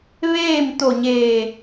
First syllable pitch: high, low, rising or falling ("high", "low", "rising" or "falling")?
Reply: falling